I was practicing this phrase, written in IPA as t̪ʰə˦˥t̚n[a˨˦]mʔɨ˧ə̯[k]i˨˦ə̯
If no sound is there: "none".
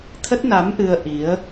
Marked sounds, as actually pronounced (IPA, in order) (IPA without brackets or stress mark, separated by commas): a˨˦, ʔ